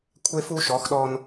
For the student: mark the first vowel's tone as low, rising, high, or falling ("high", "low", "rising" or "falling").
high